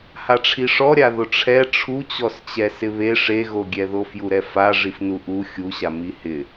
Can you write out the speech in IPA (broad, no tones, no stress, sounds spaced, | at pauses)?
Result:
h a ʈ͡ʂʰ i ʂ ɔ ɾʲ a ð ʊ ʈ͡ʂʰ ɛ ʈ͡ʂʰ u t͡ɕ ɔ s t͡ɕ ɛ s ɪ β e ʂ e ɣ o ɡʲ ɛ ð o f j u ɾ ɛ f a ʐ i f n u ʔ u xʲ u ɕ a m i h ɪ